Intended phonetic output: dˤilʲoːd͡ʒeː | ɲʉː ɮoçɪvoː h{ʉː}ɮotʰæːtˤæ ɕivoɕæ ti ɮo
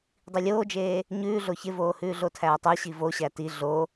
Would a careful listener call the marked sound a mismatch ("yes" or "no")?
no